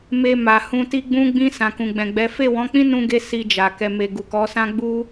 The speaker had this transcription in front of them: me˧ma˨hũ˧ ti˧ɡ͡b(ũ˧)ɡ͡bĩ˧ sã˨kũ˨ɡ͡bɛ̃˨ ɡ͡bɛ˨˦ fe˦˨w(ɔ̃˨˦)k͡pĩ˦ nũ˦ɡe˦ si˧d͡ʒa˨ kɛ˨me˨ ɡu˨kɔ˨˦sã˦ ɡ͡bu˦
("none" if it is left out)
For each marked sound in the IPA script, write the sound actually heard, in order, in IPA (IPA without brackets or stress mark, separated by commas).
ũ˧, ɔ̃˨˦